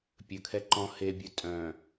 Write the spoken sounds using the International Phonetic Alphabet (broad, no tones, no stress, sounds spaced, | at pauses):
pʲ ɵ kʰ ɛ ǃ ɔ̃ h e bʲ ɵ tʼ œ̃